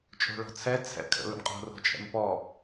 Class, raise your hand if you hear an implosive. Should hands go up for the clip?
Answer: no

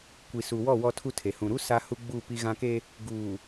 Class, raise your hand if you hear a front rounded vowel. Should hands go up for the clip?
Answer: no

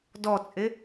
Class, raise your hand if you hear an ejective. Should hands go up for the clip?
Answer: yes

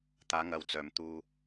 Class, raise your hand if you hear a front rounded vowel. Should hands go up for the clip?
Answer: yes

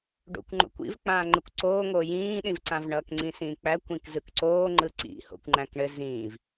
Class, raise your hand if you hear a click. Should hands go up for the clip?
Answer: yes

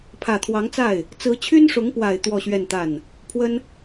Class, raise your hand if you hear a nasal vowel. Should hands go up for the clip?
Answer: no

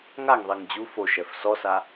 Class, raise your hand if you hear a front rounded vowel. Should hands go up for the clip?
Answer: no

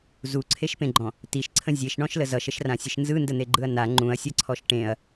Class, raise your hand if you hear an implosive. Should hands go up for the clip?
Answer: no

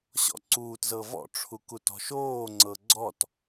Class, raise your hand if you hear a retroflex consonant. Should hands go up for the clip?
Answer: yes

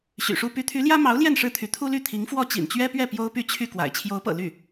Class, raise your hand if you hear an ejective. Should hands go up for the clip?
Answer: no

